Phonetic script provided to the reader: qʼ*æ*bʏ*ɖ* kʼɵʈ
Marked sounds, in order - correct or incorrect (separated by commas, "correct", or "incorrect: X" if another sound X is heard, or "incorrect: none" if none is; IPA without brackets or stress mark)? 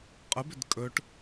incorrect: ə, incorrect: d